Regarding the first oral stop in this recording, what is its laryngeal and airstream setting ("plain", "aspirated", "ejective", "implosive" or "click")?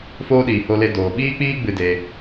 implosive